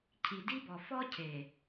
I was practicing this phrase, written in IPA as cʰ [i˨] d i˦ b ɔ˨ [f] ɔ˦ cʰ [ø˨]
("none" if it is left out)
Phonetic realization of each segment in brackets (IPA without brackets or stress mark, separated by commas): i˨, f, e˨